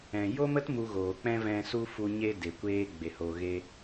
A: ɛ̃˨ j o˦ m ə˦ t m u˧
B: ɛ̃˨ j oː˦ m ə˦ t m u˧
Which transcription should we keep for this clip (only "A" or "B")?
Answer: A